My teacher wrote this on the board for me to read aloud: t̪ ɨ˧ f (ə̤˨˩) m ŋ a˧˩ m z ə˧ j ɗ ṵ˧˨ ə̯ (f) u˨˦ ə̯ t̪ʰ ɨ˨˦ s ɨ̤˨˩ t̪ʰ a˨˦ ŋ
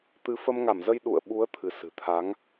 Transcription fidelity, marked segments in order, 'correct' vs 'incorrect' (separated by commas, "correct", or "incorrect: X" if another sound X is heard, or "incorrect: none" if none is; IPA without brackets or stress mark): incorrect: ə˧, incorrect: ɓ